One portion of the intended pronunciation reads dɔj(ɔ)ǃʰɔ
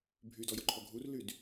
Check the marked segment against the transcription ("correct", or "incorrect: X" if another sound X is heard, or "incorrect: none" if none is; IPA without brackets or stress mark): correct